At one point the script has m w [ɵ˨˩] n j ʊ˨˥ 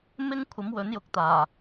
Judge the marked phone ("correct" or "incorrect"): incorrect